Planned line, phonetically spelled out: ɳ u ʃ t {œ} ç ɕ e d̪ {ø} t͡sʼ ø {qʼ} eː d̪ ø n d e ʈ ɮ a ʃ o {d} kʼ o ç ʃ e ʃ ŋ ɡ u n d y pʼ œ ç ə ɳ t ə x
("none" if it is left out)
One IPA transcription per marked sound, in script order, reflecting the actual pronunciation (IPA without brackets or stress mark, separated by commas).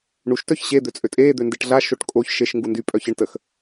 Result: œ, ø, tʼ, ʈ